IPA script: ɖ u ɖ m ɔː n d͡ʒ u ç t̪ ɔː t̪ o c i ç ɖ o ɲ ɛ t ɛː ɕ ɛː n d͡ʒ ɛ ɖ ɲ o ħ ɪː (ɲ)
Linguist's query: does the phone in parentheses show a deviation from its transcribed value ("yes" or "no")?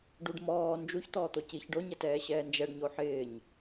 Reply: no